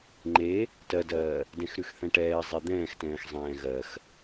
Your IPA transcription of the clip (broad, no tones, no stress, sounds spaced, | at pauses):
ŋ͡ǃ e | t ɜ d ɜː | d ɛ̃ x ɾ ʉ x θ ɛ̃ ʈ ɛː zˤ e d̪ ɛ̃ː x t ɛ̃ː x zˤ ɛ̃ː ɣ ɜ x